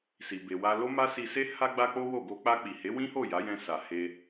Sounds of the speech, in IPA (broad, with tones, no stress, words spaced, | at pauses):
si˨be˨wa˧ lo˦ma˦si˧se˦ ha˧ɡ͡ba˧ k͡po˦wo˦˨ ɡo˧k͡pa˧k͡pi˨he˨˦ wĩ˦ho˦˨ ja˨˦jɛ̃˧ sa˨he˧